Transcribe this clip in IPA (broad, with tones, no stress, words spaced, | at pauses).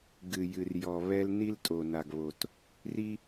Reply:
ɡɨ˧jɨ˧r jɔ˧βɛ˥l ni˥ltʼo˧na˧ɡβo˧t | ri˥